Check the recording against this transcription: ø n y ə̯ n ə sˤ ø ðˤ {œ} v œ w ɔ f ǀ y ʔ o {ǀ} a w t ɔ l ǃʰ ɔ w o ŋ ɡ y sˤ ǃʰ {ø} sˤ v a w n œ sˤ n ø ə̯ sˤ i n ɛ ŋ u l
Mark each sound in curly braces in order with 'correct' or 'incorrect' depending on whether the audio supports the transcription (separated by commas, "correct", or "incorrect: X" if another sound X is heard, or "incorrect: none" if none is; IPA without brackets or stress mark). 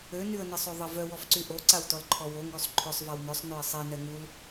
incorrect: ə, correct, correct